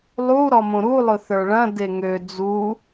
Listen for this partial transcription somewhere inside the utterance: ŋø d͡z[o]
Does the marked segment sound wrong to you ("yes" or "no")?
yes